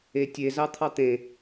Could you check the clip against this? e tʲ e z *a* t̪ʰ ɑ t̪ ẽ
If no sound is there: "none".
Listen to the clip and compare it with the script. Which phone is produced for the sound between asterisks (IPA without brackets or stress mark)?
ɑ